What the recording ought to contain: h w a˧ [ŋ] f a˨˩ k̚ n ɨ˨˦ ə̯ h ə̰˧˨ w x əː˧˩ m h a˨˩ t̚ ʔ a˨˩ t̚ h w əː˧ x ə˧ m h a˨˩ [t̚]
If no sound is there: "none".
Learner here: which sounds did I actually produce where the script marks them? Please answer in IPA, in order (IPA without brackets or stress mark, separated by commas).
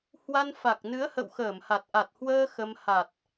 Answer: n, t̚